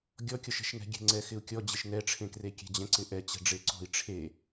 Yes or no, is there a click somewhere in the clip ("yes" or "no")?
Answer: yes